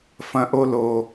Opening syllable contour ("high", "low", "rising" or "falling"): falling